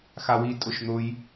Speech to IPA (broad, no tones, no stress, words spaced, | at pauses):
xawi tʼʊʃn̪ʊj